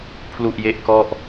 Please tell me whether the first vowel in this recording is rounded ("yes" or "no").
yes